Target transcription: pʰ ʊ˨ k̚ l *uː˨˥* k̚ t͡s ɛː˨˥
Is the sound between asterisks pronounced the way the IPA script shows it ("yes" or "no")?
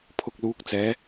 yes